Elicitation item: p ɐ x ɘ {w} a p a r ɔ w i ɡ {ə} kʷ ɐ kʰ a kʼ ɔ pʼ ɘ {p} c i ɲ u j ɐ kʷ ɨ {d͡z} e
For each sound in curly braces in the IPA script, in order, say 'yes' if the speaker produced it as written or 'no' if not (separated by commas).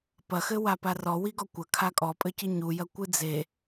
yes, no, no, yes